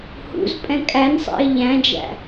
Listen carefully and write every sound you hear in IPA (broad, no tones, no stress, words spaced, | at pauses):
hṵzpʼɛ̃ kʼænsˤɛ̰ɪ̯ ʎæ̃d͡ʒæ̰